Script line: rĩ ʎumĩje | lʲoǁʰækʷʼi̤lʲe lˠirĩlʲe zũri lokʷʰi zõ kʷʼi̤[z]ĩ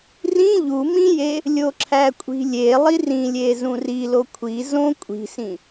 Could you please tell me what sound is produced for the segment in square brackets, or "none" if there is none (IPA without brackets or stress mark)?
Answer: s